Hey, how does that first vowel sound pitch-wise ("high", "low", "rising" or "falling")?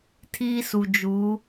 high